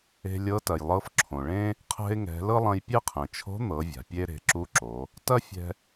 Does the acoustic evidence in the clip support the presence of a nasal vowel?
yes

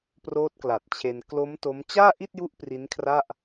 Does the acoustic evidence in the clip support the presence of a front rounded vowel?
no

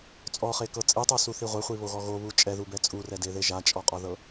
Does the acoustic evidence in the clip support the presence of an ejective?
yes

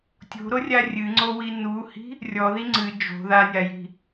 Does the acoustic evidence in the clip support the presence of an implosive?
no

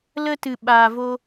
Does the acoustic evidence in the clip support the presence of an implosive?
yes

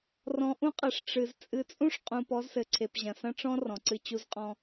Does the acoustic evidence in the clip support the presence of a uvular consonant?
yes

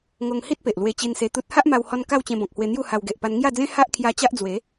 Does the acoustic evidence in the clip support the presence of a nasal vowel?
yes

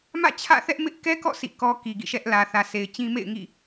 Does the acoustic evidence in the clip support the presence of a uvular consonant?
no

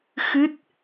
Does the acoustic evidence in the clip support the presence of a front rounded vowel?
no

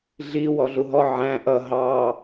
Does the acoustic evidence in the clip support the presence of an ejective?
no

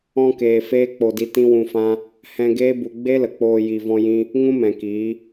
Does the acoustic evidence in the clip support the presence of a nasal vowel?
yes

